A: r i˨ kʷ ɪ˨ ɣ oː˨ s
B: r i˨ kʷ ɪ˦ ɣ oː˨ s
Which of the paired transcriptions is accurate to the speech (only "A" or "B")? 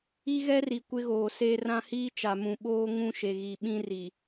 B